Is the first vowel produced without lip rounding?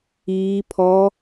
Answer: yes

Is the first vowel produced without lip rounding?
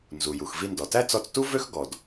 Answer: no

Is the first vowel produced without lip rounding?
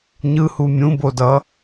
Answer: yes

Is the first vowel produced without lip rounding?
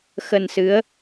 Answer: yes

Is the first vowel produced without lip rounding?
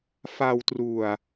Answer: yes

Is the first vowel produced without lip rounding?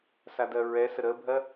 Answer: yes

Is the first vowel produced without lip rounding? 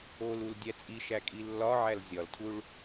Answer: no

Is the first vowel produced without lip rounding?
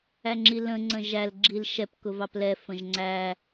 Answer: yes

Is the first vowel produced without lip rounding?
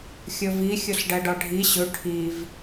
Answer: no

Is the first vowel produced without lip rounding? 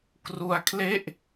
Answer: no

